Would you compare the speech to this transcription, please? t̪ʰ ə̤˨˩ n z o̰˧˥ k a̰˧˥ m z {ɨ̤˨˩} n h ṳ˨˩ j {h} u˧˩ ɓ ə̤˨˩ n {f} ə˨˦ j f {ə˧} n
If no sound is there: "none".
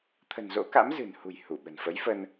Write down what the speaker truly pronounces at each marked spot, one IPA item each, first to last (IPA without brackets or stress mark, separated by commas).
ɨ̤˨˩, h, f, ə˧